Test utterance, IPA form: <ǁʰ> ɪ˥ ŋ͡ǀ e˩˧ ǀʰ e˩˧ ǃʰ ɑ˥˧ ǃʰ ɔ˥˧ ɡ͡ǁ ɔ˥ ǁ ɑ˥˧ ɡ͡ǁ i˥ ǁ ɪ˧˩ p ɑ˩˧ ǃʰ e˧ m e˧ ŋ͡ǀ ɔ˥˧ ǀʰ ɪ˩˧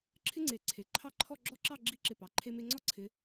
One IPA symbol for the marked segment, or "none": ǁʰ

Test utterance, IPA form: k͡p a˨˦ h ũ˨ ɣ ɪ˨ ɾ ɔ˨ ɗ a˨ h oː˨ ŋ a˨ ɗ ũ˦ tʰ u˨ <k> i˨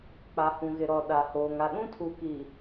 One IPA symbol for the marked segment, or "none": k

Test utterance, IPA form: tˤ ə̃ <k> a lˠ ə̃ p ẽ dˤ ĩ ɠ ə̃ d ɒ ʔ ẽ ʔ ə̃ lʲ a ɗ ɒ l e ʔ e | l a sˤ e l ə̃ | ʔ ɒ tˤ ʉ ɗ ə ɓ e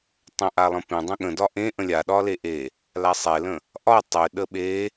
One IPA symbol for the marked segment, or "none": ʔ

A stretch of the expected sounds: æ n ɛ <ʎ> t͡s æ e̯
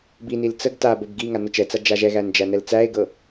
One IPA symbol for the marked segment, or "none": l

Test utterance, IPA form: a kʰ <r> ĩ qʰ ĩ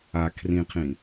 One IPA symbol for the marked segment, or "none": r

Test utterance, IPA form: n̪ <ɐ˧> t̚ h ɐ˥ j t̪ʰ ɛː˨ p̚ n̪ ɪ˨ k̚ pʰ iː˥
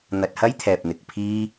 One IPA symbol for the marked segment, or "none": ɐ˧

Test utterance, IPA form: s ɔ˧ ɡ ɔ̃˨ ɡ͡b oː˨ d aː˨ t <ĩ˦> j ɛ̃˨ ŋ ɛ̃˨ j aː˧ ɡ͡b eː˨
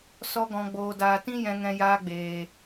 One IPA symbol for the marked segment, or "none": ĩ˦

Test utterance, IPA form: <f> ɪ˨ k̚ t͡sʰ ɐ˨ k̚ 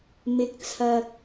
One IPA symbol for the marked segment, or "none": m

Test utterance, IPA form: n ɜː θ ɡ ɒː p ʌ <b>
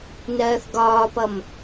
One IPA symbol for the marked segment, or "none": m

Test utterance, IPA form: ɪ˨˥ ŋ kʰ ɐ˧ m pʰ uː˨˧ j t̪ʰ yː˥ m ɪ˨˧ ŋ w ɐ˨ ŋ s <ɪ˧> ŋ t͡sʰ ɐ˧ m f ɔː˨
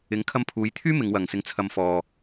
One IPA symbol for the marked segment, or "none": ɪ˧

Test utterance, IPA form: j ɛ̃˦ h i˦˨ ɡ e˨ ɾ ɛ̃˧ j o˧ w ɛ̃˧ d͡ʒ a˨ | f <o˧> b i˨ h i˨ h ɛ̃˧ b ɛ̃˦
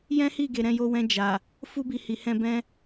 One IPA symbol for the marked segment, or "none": u˧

